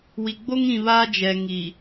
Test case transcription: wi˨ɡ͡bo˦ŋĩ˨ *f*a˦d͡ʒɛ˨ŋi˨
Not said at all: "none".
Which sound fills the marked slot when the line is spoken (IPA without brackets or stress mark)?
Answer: β